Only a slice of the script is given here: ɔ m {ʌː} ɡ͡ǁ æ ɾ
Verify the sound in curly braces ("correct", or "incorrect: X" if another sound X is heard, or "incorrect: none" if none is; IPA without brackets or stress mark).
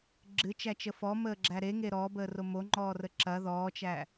incorrect: əː